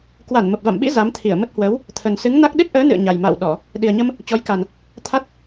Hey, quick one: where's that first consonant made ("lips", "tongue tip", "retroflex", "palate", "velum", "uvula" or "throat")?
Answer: velum